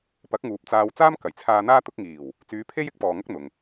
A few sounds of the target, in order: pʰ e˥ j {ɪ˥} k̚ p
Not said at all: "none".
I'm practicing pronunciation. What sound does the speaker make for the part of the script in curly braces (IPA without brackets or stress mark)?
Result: ɪ˥